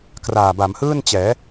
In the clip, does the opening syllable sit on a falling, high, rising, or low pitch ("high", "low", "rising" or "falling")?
low